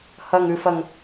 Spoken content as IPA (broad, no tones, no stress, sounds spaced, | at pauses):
h ɐ ŋ ʉ f ɐ ŋ